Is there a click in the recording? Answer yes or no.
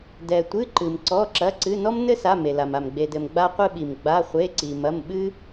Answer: yes